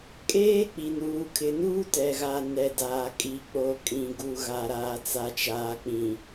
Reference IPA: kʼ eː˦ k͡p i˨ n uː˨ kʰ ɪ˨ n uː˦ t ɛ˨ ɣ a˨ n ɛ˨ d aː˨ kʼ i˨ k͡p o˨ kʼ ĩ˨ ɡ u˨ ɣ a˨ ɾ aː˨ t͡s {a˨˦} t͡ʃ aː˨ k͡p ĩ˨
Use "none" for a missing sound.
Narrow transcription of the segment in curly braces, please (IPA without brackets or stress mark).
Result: a˨